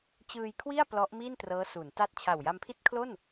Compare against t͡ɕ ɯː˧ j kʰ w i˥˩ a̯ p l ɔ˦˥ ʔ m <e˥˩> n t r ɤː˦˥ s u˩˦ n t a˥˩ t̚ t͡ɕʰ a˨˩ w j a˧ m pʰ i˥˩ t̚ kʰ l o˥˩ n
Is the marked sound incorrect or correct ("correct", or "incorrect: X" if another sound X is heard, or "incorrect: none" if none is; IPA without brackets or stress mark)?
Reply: incorrect: i˥˩